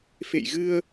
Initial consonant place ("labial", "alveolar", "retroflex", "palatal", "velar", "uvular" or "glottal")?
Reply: labial